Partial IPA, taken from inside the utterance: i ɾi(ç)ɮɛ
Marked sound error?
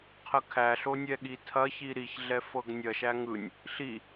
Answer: no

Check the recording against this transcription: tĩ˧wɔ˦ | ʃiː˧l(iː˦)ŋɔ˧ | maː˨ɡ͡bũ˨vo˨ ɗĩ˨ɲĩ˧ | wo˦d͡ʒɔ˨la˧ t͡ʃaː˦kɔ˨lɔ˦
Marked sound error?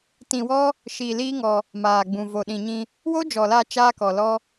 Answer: no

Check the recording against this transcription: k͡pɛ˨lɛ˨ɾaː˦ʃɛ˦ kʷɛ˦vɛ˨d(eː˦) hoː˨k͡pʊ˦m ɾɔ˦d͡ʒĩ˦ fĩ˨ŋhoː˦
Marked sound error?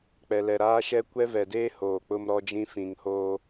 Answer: no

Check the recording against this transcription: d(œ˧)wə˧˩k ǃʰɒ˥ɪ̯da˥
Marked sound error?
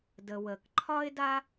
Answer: yes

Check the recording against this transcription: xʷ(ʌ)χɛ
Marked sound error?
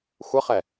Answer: no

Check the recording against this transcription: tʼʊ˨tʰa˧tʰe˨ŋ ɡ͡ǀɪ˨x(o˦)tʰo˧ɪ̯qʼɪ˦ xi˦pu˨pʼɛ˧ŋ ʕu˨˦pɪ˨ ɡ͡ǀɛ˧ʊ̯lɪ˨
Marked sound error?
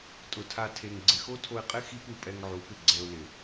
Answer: no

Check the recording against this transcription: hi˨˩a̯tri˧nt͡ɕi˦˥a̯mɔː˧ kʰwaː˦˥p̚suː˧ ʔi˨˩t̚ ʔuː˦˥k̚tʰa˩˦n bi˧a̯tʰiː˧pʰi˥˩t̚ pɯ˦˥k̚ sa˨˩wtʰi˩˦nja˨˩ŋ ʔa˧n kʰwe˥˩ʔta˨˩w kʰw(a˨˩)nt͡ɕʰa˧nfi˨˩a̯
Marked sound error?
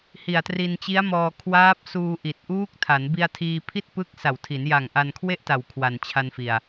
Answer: no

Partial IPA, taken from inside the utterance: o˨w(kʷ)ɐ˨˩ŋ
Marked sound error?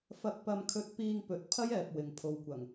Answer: no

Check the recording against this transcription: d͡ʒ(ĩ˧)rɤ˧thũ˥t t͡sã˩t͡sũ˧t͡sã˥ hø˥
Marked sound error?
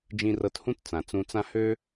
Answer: no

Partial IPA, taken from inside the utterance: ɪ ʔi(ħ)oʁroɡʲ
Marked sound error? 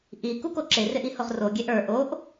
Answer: yes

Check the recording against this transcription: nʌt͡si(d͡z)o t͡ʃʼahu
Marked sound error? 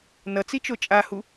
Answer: yes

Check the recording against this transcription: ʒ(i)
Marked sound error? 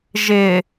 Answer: yes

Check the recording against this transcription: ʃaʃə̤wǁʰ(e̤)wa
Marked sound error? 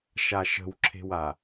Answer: no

